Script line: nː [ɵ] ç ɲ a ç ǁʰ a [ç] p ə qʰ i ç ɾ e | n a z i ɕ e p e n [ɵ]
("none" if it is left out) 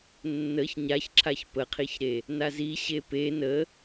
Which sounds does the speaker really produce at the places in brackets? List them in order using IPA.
ə, ç, ə

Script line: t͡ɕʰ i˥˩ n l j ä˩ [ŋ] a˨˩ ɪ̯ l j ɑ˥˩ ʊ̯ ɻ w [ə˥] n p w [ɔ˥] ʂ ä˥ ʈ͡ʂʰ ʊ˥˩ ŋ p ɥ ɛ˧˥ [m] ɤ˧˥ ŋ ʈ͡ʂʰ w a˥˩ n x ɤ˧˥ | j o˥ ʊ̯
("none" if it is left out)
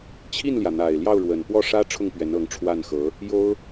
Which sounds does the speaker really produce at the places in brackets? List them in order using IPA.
n̪, ə˨˩, ɔ˥˩, n

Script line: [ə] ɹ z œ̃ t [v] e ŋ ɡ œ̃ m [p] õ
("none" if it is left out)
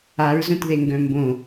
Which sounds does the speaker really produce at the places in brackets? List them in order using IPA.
a, ð, b

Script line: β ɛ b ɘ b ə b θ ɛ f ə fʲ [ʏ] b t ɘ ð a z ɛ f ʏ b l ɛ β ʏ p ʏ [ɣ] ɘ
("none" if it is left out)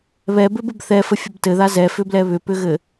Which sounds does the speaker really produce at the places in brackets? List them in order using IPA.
ə, ɣ

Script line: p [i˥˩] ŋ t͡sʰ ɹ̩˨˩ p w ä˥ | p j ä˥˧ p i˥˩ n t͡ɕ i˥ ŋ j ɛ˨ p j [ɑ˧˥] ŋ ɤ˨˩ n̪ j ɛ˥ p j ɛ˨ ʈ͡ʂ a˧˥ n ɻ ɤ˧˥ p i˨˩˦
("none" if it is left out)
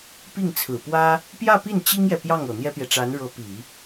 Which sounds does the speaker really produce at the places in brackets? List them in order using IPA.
i˥˩, ɑ˥˩

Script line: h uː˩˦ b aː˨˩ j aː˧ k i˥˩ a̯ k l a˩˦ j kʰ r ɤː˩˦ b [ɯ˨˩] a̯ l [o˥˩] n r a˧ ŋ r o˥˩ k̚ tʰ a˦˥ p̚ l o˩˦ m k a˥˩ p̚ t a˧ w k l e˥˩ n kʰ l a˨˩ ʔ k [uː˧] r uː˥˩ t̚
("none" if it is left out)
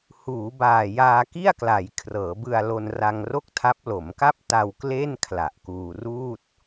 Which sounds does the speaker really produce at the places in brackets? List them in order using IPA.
ɯ˧, o˧, uː˧

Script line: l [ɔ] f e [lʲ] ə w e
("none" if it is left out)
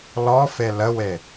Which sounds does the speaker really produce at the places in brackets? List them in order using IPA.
ɔ, l

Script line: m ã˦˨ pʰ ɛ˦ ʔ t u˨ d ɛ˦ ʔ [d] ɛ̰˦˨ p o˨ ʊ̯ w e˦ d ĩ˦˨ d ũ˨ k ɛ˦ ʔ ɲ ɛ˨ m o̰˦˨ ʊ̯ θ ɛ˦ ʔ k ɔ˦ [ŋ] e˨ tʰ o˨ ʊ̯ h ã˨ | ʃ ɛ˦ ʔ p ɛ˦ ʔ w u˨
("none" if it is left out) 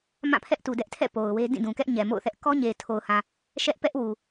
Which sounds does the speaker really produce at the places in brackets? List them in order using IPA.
tʰ, ɲ

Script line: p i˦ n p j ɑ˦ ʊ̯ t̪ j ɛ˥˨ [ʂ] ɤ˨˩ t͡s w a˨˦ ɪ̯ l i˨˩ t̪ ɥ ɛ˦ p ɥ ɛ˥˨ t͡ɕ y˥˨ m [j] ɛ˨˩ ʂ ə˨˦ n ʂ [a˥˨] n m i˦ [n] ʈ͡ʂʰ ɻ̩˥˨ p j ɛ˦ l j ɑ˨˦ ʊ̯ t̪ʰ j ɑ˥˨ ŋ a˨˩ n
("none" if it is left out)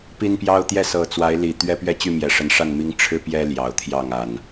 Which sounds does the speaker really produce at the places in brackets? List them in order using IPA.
s, j, a˥˨, ŋ

